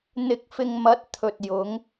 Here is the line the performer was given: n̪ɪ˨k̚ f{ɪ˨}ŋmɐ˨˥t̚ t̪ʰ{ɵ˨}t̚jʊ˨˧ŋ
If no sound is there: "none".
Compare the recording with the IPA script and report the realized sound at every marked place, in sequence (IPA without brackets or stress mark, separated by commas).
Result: ɪ˨, ɵ˨